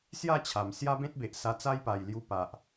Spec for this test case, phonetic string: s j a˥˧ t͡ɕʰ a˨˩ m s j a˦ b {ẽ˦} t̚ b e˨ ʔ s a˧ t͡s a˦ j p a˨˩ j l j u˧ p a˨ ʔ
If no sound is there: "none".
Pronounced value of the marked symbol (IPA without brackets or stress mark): ẽ˦